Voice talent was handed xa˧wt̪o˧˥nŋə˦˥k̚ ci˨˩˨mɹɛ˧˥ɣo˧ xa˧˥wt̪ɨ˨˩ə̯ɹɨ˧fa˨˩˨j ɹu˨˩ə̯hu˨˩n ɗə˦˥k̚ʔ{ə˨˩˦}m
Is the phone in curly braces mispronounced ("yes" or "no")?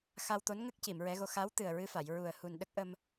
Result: yes